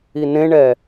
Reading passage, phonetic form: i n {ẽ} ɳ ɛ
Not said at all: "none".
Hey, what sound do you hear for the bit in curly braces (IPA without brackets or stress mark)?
ẽ